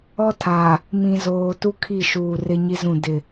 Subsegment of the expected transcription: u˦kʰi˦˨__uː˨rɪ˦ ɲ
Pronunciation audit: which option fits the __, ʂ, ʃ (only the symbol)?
ʃ